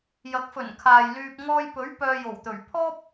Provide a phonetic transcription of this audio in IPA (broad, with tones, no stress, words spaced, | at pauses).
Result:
jɐ˨˥k̚fɵ˨˩nkʰaː˨j lyː˧p̚ ŋɔː˧jpɵ˨˥ɥ pœː˧jo˨˩wt̪ɵ˨˩ɥ pʰɔː˥p̚